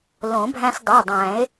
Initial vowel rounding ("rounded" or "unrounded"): rounded